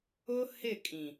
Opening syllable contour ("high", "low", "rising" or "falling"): high